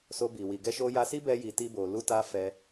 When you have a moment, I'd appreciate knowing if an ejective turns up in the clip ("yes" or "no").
no